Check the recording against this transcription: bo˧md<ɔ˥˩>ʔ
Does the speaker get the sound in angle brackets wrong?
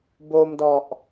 yes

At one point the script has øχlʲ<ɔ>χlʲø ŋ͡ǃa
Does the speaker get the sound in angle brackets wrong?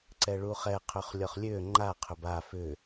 no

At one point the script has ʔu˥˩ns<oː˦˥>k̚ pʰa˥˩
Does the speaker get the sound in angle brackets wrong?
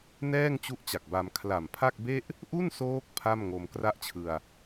no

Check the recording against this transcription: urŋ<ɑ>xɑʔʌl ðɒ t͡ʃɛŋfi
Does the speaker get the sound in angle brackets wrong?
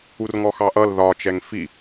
yes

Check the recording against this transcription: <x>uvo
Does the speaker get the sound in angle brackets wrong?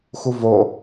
no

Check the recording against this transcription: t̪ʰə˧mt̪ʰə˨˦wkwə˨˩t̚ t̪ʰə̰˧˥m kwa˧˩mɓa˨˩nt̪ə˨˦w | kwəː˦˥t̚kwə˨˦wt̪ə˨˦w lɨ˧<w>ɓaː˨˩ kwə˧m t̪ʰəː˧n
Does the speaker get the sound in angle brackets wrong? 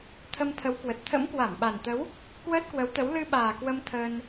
yes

